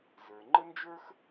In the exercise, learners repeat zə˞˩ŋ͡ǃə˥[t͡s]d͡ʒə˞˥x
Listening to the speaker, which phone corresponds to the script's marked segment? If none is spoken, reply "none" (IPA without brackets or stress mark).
n